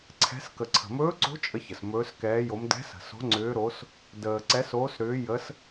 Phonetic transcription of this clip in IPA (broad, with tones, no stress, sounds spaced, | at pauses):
ǀʰ ɛ̤˧˥ s k ə˨ ǀʰ ə̤˨ m ɵː˧˥ ǀ o̤˧˥ t͡ʃʼ ə˧˥ ç ə˨ s m ɵː˧˥ s k ɛː˧˥ j o˧˥ m d ɛ̤˧˥ s ə̤˨ s o̤˧˥ ŋ͡ǀ ʏː˧˥ ɾ o˧˥ s | d əː˨ ǀ ɛ˧˥ s oː˧˥ s ɾ ʏː˧˥ j ə˧˥ s